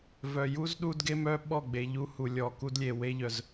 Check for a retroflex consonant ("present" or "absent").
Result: absent